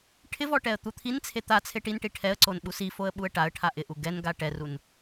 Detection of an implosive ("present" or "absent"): present